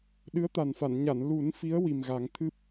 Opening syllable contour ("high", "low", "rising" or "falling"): rising